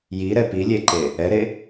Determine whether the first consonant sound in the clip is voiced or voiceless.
voiced